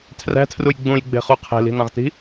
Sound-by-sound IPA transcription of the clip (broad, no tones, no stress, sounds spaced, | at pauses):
tʰ r æ̤ tʰ r u j ɡ͡b ũ j ɡ͡b e̤ χ u qʰ e̤ l i̤ n ɑ̃ ʁ t i̤